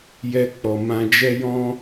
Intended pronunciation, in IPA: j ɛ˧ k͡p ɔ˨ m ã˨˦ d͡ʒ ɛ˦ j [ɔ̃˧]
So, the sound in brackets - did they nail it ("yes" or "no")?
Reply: no